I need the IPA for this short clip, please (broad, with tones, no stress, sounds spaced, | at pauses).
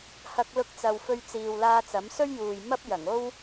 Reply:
h ɐ˧ k̚ l ʊ˧ k̚ t͡s ɐ˨ w f ɵ˧ ɥ t͡s iː˨ w l aː˧ t͡s ɐ˨˥ m s ɵ˥ ɥ j uː˨ j m ɐ˥ p̚ j ɐ˨˩ ŋ o˥ w